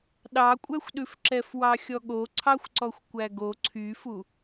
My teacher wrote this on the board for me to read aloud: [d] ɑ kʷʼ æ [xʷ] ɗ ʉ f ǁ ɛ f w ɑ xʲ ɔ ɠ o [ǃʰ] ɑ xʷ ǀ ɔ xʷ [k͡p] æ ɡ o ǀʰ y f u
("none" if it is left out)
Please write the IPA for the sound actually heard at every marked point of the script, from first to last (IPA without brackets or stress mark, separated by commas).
ɗ, xʷ, ǀʰ, kʷ